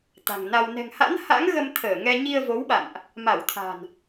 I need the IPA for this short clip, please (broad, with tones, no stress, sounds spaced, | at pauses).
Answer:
t̪ a̤˨˩ ŋ n a˧ w n ɛ̤˨˩ ŋ h a̰˧˥ n h a̰˧˥ ŋ ɣ ə˧ m t̪ʰ əː˧˩ ŋ ɛ˧ ɲ i˧ ə̯ v o˨˦ w ɓ a̰˧˨ n ʔ | m a˧˩ w t̪ʰ a̤˨˩ n